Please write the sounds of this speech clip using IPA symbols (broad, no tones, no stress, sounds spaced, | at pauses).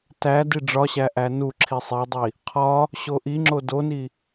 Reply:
t æ d i ɖ͡ʐ ɒ ɕ æ ʔ æ n u ǁʰ i sˤ e dˤ i | qʰ ɒ | ɕ o ʔ i ŋ͡ǁ o d o n i